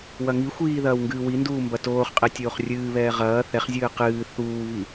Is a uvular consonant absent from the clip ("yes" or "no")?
no